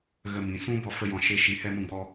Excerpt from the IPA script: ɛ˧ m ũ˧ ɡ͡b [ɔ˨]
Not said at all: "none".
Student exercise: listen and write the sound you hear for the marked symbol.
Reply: ɔ˧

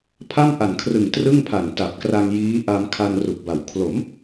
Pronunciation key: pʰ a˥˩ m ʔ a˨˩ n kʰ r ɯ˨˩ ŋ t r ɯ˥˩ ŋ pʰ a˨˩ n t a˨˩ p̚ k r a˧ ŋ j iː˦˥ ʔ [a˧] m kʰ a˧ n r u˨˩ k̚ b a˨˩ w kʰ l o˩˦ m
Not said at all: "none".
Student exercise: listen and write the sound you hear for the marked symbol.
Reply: a˧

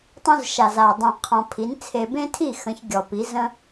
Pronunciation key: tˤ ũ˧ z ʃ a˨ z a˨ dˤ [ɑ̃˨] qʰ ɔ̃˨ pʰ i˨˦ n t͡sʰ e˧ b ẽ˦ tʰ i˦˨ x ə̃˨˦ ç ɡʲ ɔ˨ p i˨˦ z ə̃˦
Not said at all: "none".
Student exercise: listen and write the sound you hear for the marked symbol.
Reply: ə̃˨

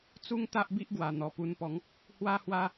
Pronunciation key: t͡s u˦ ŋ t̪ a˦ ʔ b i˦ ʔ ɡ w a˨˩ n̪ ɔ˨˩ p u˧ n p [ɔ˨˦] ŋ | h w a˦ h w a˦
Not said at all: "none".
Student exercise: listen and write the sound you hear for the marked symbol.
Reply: ɔ˨˦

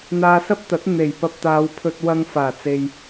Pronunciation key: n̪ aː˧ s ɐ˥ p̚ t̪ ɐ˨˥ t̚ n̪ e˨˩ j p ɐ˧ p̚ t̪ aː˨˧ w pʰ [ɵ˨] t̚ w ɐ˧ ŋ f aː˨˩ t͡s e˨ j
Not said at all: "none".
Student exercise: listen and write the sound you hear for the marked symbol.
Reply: ɵ˧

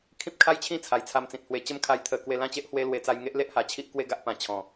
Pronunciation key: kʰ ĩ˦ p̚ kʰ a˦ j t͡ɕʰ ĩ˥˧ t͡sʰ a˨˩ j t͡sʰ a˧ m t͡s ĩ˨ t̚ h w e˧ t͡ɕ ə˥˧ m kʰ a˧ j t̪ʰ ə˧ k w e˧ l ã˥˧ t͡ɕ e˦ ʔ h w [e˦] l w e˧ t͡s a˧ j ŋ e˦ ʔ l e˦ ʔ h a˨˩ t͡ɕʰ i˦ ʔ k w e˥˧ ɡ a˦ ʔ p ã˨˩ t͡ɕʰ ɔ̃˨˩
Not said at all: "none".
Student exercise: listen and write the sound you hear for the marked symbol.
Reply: e˦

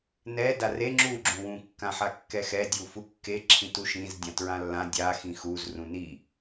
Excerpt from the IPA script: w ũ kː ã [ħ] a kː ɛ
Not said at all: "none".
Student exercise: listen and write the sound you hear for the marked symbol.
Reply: ħ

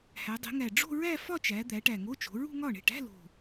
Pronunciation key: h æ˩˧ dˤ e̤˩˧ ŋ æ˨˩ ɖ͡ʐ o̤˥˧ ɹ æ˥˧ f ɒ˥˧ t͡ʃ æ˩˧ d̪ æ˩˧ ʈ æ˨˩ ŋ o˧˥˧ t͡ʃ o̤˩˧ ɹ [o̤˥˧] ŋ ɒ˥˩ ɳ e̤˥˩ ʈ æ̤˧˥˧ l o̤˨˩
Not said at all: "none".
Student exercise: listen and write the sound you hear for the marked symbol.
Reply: ṳ˥˧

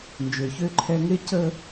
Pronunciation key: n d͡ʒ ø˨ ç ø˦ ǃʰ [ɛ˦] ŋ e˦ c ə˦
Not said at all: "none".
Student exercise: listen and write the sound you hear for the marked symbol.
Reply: ɛ˦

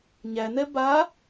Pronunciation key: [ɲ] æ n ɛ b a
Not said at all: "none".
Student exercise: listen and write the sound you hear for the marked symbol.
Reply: ɲ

